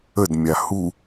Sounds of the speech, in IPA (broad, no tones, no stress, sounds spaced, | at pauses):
ə d mʲ a h u